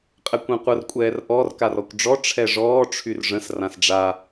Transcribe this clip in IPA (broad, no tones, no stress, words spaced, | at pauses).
qʼɛkʷɛ̃qʷər kʷʼɛːrʔɔr karɔkʷɖ͡ʐɔ ʈ͡ʂʰɛʐɔː ʈ͡ʂʰyrʐə̃s rãsɖ͡ʐa